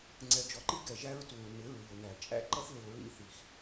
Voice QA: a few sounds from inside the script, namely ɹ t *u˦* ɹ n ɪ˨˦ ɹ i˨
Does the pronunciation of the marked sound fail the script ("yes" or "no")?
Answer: yes